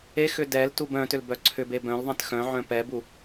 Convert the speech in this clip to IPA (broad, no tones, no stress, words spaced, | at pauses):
exʏ dɛltub œ̃tʏlbœ ǀʰʏbe bœ̃lðˤɛ̃t xœ̃ʕœ̃ pɛbu